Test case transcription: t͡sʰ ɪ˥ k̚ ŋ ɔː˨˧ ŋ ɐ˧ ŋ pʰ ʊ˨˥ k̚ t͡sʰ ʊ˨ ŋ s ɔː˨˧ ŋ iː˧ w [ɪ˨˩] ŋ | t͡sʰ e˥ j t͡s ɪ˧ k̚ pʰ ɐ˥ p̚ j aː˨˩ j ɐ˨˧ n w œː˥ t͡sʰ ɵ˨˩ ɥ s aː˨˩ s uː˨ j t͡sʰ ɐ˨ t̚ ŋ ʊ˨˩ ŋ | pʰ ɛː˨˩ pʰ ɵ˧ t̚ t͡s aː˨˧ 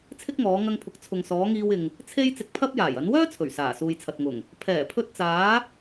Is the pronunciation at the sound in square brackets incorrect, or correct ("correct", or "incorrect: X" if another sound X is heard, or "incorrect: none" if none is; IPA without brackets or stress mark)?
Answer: incorrect: ɪ˨